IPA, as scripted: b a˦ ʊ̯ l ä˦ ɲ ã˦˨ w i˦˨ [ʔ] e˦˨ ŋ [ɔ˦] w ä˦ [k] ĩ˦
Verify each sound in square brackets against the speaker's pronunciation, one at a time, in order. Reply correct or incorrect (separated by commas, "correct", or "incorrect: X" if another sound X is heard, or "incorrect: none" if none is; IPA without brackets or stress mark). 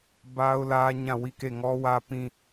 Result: incorrect: k, correct, incorrect: p